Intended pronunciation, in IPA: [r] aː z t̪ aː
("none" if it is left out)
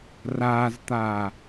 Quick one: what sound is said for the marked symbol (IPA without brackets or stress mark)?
r